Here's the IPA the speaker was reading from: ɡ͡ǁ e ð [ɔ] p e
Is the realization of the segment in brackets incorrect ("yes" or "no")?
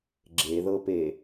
yes